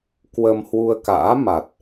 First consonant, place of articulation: velar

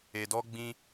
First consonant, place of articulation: alveolar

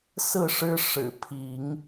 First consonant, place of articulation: alveolar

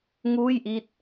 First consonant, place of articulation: velar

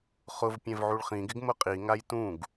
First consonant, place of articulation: uvular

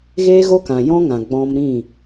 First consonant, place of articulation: velar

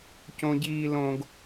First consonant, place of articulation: palatal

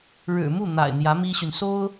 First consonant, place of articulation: retroflex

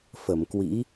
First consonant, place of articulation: labial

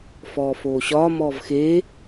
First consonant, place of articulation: labial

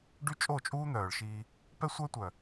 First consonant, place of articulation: retroflex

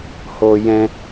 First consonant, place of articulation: glottal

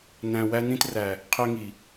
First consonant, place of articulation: alveolar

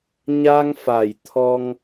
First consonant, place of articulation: palatal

